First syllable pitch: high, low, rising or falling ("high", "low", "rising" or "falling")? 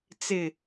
low